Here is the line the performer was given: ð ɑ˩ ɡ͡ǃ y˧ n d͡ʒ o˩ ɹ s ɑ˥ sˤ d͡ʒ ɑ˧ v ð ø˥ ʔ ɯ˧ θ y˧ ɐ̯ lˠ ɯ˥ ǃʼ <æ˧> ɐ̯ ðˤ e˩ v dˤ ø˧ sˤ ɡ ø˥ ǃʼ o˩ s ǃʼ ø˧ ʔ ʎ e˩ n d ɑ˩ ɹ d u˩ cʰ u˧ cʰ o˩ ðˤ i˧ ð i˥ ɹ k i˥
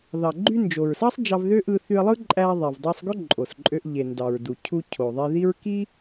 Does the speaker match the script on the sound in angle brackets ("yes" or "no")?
yes